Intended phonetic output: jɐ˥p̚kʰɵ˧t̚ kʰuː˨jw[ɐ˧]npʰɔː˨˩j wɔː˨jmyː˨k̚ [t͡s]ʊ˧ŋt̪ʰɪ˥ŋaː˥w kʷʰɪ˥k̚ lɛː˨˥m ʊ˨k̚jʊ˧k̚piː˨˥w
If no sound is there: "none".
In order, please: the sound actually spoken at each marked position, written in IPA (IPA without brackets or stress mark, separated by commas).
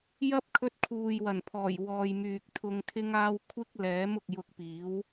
ɐ˨˩, t̪ʰ